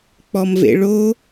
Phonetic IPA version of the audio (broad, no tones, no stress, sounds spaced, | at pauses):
k͡p ɔ m v ḛ ɭ o